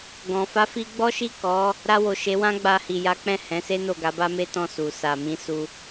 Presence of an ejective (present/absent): absent